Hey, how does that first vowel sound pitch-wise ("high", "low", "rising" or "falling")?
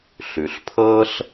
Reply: low